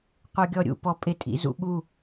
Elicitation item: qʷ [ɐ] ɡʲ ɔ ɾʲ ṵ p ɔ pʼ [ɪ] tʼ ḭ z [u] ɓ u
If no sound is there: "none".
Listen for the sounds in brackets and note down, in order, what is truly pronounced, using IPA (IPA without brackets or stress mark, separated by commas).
ə˞, ɪ, ṵ